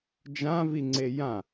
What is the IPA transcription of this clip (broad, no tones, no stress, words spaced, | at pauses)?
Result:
d͡ʒãviŋ͡ǀe jã